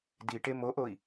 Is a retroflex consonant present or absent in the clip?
present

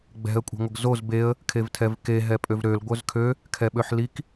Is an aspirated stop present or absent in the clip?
present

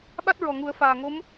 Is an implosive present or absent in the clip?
present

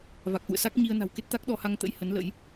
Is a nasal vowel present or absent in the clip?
absent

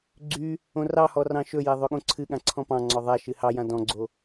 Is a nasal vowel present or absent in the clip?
present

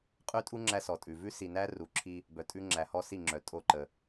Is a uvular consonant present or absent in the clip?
present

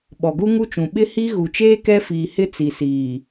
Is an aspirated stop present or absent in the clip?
absent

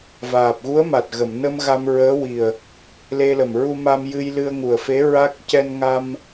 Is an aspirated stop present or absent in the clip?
absent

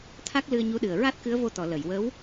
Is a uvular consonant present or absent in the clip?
absent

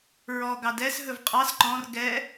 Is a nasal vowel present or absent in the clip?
present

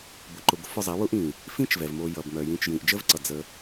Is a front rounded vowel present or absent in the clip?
present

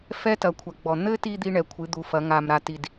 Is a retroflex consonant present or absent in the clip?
present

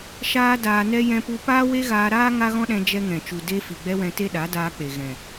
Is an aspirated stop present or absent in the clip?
absent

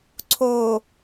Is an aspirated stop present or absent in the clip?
present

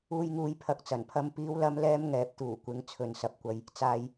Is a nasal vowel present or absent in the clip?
absent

